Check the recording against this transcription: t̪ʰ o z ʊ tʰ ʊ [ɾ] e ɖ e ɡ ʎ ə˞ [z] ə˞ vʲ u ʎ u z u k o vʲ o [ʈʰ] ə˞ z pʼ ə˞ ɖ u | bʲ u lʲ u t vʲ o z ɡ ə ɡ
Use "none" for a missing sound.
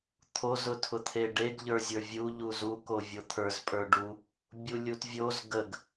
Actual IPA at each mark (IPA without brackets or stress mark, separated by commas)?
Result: t̪ʰ, zʲ, t̪ʰ